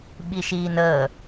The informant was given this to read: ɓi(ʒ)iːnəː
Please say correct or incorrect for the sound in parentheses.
incorrect